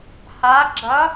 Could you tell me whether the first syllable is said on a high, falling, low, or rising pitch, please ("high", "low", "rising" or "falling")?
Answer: rising